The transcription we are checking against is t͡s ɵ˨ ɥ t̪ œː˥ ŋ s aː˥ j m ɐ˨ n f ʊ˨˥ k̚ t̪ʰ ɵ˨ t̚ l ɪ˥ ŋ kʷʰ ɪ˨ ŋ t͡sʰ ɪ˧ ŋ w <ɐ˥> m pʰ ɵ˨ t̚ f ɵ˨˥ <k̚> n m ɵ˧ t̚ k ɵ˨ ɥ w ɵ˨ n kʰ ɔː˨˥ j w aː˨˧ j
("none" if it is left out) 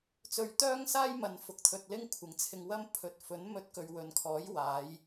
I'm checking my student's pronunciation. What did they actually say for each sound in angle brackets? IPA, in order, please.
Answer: ɐ˥, none

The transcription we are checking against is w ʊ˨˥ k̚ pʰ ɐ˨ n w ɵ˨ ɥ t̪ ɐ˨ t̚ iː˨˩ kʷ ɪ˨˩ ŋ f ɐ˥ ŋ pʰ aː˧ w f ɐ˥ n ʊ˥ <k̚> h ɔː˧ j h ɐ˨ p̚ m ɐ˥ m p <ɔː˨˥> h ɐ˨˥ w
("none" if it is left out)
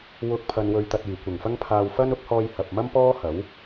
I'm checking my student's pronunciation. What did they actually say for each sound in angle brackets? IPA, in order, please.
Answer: k̚, ɔː˥

